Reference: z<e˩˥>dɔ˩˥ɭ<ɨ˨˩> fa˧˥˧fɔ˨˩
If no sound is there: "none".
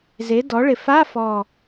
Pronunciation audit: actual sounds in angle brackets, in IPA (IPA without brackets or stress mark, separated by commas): e˩˥, ɪ˨˩